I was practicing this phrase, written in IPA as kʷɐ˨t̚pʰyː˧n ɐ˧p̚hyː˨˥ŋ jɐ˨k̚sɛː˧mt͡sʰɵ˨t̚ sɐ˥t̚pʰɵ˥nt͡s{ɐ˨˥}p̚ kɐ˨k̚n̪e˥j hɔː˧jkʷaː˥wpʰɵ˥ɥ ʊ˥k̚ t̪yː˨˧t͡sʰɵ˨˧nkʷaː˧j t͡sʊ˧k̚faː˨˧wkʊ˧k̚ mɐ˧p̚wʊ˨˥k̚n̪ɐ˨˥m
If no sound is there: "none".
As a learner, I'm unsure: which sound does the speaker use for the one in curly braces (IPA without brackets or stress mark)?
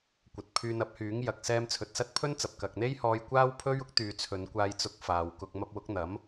ɐ˨